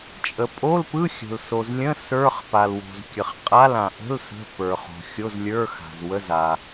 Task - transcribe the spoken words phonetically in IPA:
t͡ʃʼə˩pʼo˧˥˧lpɯ˧˥˧xʲə̤˩l so˩zlʲə̃˧˥˧ sə˞˧˥˧χpa˩lwo̤˩z kʲə˩χ qʼa˧˥˧lã˩ ʔə̤˧˥˧l sə̤˧˥˧pə˞˩χo̤˩ xʲo˧˥˧zlʲə˞˧˥˧ xa̤˩zwə˧˥˧z a˩

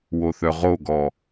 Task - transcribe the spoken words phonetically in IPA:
woθœʁoɡɔ

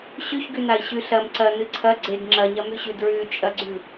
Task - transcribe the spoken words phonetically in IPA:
ɕʉçɡʉnai̯ ɕʉɬɐm ǀɐ nɨǀʰɐ ɡ͡ǀeɡ ŋ͡ǁɐɲɐmʉɕʉ dɹʉt͡ʃʼɐɡ͡ǀʉ

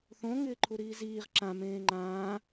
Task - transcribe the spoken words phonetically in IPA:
θõ ŋɪːǃʰuɾiːziːʁ ǁã mẽːŋ͡ǃãː

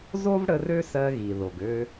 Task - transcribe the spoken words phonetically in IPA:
zo˥v ɽə˧r ø˥sɜ˧ɣi˩ðo˩ɡ ø˧

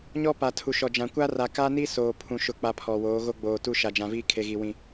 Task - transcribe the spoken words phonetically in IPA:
ɲɔ˦pa˨tʰu˨ ʃɔ˨d͡ʒã˨kʷa˦ra˨ ka˦ni˦ soː˨pʰũ˨ ʃʊ˦k͡pa˦pʰɔ˨woː˨˦ ɣo˦ɡ͡boː˨tu˦ ʃa˨d͡ʒã˨viː˦ kʰe˨ɣi˨wĩ˨

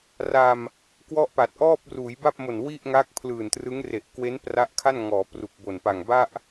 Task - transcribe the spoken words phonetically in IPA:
ra˧m | kwɔ˥˩ʔpa˨˩t̚ ʔɔː˥˩p̚ruː˩˦jba˥˩p̚mo˨˩n wi˥˩ʔŋa˦˥k̚ pʰlɯː˨˩ntrɯ˦˥ŋre˨˩ʔkwe˦˥n pra˦˥ʔkʰa˥˩n ŋɔː˩˦ pru˨˩k̚bo˨˩npa˨˩ŋ ba˥˩ʔ

